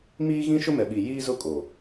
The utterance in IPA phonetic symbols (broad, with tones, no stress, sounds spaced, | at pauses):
m iː˦ ɣ ĩ˦ ʃ ʊ˦ m ɛ˨ ɓ i˨ j iː˦ z ʊ˦ kʼ o˨